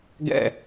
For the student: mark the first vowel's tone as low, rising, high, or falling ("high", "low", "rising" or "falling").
low